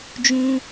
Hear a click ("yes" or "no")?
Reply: no